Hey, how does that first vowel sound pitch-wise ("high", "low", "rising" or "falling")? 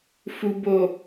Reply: low